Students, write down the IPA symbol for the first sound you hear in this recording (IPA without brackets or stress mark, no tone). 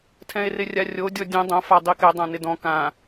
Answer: tʰ